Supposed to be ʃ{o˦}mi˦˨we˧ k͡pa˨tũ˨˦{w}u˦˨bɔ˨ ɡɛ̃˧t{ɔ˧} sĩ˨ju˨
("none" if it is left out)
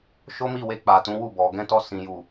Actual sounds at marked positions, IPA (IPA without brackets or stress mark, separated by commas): o˦, w, ɔ˧